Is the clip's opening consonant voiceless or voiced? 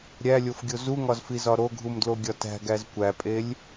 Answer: voiced